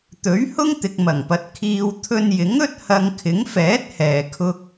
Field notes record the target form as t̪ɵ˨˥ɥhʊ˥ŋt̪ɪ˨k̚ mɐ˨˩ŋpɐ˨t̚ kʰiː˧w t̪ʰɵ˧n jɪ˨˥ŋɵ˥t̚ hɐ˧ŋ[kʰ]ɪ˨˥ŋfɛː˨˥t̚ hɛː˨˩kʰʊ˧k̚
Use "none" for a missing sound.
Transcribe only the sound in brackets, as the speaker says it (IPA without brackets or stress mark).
kʰ